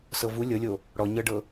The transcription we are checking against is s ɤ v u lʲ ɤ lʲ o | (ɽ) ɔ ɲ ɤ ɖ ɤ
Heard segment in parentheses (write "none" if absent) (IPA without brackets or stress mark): ɽ